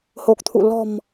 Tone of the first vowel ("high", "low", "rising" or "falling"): low